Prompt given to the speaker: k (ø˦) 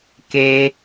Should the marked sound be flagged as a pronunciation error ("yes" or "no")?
yes